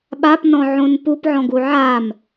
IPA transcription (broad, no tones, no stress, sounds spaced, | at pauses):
ɓ a p n ɔ̃ ʕ õ n p u p ʕ ɔ̃ ɡ u ʕ a m